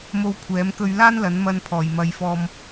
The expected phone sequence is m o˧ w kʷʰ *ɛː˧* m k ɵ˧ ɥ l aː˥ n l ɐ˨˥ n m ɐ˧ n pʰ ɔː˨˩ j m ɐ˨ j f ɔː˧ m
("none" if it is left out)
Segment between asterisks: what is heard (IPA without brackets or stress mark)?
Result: ɛː˨˥